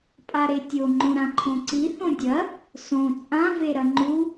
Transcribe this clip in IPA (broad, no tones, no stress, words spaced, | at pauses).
pʼaɾetʲo ŋ͡ǃõɾãǃʰõǀi θõdʲɐ | sõ t͡sʼã veɾɐŋ͡ǃu